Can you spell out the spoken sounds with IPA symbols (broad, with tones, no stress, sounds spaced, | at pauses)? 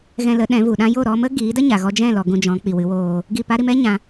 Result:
ɣ ɛ̃˧ l ə˨˦ ɗ ɛ̃˨˦ v u˨ ɗ ã˦ j o˦˨ ɾ ɔ˧ m ə˦ ɡ iː˨˦ d ə˦ ɲ a˨ ɣ ɔ˧ d͡ʒ ɛ̃˦˨ l ɔ˨ ɡ ũ˧ d͡ʒ ɔ̃˨˦ k͡p i˨ w ɨ˨˦ w oː˧ | ɡ i˦˨ p a˦ ɾ i˧ m ɛ˦ ɲ ã˧